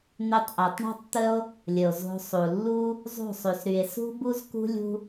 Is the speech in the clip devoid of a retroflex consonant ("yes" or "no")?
no